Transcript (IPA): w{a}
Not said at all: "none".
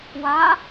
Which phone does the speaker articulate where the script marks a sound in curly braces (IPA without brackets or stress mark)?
a